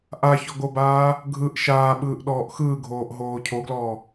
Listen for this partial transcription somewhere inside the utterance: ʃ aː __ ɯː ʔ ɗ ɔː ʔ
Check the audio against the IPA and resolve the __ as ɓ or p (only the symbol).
ɓ